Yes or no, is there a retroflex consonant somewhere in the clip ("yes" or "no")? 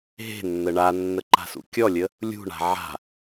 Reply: yes